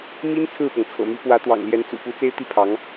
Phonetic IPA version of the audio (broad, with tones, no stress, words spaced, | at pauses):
mi˥n t͡sʰɹ̩˥˩pɤ˩ŋt͡sʰɤ̰˨˩my˧˥ pwä˧˥t̪wɑ̰˨˩ŋljɛ˧˥nt͡sṵ˨˩ pu˧˥t͡se˥ɪ̯t̪i˥˩ pʰɑ˧˥ŋ